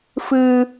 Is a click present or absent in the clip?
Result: absent